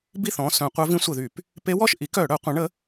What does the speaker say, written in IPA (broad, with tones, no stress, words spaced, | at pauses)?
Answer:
bi˥˩θɔ̃˩˧˩sœ̃˧˩˧ qʷœ˧˥vĩ˧˥sʷə˧˩˧ðy˧˩˧p | pe˧˥wɔ˥˩ʃ ʔi˩˥kœ˧˩˧ɽœ˧˩˧ qʷə̃˩˥ɳə˩˥